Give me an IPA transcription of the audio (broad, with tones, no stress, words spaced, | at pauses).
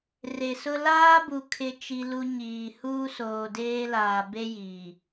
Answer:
re˨sʊ˦ laː˦bu˨ kʰɪ˦t͡ʃi˦lu˦ ɲiː˨ huː˦soː˨deː˦laː˨ be˦ ji˨